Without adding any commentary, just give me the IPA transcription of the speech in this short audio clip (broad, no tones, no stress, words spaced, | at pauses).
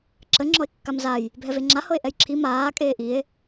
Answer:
ǁə ŋ͡ǁɔe̯kːamzaj | bʱɛveŋ͡ǁa hɤe̯ʔɛjǁʰi maː kʼeːʔie̯